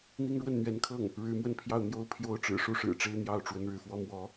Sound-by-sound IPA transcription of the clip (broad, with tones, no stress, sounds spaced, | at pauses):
n̪ i˥ ŋ ɻ w ə˥˩ n n̪ ɥ ɛ˧˥ n kʰ ɤ˥˩ ŋ | ɻ ɻ̩˧˥ m w ə˥˧ n pʰ j ɑ˥˩ ʊ̯ n̪ j o˥ ʊ̯ pʰ j o˥ ʊ̯ ʈ͡ʂ ɻ̩˨˩ ʂ u˥˩ ʂ ɻ̩˨˩ ʈ͡ʂ e˥ ɪ̯ n̪ j ɑ˥˩ ʊ̯ ʈ͡ʂ w ə˧˥ n ɻ ɻ̩˥˩ f w ɔ˥ m w ɔ˧˥